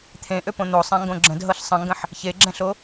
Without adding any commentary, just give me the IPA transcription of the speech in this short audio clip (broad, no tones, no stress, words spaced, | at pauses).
t̪ʰẽʔøpõ n̪osˤɛ̃ŋɡõ ɡ͡ǁə̃dɦɤɬ sˤə̃ŋɡə̃ħ | çeɡ͡ǁɛ̃ɬo